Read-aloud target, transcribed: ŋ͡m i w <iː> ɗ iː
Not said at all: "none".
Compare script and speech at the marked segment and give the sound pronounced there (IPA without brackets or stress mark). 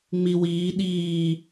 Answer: iː